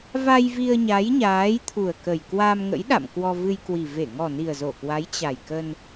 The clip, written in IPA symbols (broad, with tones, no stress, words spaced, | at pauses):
va˧jvi˧ə̯ɲa˨˦jɲaː˨˦j t̪ʰu˨˩ə̯kə˨˩j kwa˧mŋə̰˧˥jɗa̰˧˨m kwɔ˧vɨ˧jkwi˨˩ ve˧˩ŋɔ˨˩ni˨˩ə̯ zo˧˩kwa˨˦j t͡ɕa˨˩jkə˧n